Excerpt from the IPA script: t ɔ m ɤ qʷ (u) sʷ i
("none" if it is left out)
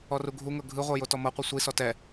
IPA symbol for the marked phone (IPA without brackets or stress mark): ɯ